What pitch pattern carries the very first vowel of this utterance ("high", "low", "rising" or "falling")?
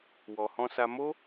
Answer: low